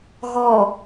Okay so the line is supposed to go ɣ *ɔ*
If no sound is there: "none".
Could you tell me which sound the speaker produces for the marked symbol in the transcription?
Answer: ɔ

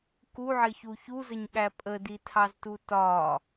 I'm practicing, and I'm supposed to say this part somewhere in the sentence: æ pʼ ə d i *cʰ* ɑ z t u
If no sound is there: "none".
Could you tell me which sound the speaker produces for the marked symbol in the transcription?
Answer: tʰ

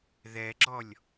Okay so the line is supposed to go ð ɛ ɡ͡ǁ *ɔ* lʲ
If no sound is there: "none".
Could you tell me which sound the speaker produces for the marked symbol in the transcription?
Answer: ɔ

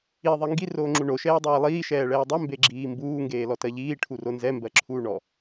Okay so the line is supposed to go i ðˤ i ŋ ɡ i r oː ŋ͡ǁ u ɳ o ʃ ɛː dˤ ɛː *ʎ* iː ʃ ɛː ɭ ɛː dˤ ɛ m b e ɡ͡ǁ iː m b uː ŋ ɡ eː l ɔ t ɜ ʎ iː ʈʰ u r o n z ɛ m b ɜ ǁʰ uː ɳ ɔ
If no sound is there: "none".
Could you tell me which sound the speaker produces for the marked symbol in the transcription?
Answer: lˠ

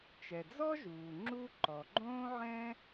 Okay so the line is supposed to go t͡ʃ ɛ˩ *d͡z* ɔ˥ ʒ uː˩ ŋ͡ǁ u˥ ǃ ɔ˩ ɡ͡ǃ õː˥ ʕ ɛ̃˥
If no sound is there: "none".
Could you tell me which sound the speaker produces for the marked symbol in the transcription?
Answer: d͡z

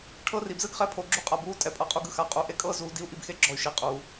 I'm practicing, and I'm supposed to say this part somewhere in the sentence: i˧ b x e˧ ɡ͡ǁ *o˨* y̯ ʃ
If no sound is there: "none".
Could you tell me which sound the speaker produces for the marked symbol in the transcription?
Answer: ɔ˨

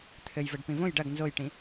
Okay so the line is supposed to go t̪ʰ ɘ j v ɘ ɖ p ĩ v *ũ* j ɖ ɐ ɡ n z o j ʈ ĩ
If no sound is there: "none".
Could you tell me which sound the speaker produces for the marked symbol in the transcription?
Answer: õ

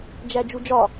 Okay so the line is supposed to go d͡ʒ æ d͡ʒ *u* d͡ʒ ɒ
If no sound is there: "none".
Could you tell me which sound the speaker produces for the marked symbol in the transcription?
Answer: u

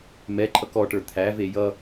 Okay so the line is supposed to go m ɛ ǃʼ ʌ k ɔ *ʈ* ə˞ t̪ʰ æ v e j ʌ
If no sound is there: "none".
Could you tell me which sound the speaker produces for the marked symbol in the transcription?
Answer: ʈ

